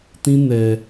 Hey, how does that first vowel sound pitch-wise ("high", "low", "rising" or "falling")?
high